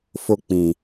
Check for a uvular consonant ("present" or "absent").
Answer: absent